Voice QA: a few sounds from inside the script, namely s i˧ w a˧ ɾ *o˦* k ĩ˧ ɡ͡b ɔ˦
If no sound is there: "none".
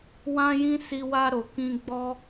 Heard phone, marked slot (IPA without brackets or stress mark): o˨